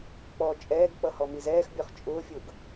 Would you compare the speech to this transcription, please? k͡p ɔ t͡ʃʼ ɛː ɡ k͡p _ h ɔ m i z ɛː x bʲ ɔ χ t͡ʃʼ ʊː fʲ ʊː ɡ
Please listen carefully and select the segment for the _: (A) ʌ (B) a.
A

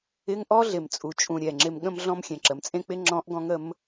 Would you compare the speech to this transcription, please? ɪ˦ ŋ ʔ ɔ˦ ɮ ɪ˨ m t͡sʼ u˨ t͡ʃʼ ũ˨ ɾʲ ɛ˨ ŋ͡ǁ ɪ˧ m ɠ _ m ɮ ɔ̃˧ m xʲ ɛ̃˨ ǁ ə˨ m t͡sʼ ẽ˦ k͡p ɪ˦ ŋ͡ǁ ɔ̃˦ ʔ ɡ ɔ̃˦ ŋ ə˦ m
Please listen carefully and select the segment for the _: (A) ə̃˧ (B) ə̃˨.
A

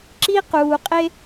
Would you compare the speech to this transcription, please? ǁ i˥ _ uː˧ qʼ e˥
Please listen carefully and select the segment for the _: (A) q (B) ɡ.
A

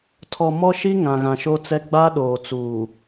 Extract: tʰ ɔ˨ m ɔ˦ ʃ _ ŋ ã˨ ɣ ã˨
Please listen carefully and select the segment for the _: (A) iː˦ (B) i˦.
B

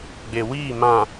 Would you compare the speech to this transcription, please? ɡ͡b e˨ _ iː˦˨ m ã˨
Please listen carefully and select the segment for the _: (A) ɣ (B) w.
B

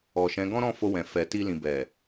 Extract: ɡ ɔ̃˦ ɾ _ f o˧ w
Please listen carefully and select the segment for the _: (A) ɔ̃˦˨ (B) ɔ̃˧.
A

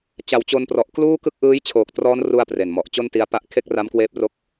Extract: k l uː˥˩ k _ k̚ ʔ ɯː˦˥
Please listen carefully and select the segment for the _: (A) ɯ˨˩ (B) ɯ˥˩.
B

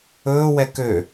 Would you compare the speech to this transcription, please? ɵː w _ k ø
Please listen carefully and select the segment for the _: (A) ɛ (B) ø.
A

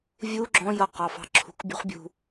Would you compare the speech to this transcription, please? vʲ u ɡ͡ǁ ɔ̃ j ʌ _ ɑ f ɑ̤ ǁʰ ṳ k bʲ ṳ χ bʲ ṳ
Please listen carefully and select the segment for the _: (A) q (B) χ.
A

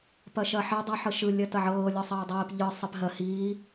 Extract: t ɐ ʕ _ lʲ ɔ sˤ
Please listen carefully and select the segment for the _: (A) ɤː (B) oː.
A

